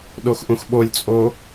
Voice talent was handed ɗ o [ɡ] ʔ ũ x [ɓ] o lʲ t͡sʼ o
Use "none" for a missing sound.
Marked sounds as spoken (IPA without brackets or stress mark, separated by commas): x, ɓ